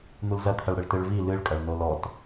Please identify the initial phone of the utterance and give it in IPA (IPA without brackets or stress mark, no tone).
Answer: n̪